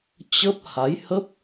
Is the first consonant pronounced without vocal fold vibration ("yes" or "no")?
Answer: yes